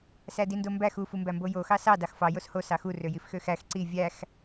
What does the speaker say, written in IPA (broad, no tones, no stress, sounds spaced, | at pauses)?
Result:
s æ d i n d o m b æ x u f u m b æ m b o j o x ɑ s ɑ d ɑ x f ɑ j o s h o s ɑ x u r ø j i f x ø x æ x ǀ i vʲ æ x